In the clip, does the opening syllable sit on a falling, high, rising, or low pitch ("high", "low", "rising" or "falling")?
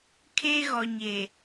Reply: high